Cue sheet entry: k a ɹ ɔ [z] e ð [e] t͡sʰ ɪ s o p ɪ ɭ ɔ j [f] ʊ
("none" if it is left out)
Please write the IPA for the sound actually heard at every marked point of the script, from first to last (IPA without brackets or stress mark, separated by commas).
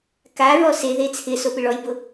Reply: s, e, b